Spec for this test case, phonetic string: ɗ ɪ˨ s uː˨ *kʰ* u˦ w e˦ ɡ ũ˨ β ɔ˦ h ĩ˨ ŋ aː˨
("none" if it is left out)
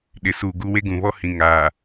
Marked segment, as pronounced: ɡ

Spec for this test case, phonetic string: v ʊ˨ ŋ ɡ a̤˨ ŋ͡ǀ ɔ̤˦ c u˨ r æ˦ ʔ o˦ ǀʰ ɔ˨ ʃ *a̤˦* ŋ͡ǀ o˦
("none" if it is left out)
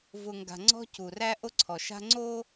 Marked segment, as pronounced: a̤˦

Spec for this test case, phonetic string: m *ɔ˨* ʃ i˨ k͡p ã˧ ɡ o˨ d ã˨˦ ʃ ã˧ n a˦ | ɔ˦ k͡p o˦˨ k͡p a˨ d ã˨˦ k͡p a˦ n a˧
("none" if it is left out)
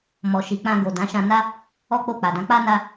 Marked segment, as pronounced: ɔ˨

